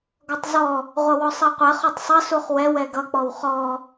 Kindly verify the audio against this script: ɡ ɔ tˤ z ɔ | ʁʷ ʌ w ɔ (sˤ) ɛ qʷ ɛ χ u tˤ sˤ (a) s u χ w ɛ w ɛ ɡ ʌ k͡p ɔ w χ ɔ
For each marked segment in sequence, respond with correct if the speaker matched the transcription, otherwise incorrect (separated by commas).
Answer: correct, incorrect